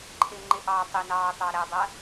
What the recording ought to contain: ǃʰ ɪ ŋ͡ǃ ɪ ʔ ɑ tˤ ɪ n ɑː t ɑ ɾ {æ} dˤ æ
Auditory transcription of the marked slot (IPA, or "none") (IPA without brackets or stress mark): æ